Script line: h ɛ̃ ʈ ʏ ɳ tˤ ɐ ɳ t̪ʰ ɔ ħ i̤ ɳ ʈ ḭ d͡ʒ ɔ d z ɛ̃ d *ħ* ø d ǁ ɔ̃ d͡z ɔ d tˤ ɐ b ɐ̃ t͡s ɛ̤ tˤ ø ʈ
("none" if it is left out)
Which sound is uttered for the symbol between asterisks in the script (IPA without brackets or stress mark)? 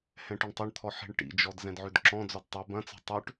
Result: ʕ